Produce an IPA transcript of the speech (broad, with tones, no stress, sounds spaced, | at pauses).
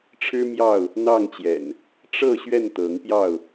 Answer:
ʈ͡ʂʰ ɻ̩˦ m j ɑ˥˨ ʊ̯ | n̪ ɑ˥˨ ŋ t͡ɕ j ɛ̰˨˩ n | ʈ͡ʂ ɤ˥˨ ɕ ɥ ɛ˥˨ n t̪ ɤ˨˦ ŋ p j ɑ˥˨ ʊ̯